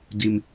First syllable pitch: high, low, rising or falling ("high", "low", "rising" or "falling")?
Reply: low